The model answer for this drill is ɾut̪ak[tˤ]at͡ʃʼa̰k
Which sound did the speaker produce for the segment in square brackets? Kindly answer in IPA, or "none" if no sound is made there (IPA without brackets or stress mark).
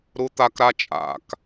ɾ